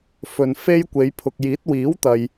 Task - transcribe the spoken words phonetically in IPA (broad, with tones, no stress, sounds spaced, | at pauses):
f ɵ˨ n f e˥ j kʷ e˨˧ j pʰ ʊ˨ k̚ j iː˨˥ t̚ w iː˨˥ w t̪ ɐ˨ j